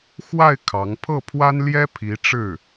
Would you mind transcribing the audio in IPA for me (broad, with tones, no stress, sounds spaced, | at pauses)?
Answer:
x w a˥˩ ɪ̯ kʰ ɑ˧˥ ŋ pʰ ɤ˥˩ pʰ w a˥ n l j ɛ˥ pʰ i˧˥ ʈ͡ʂ ɻ̩˥˩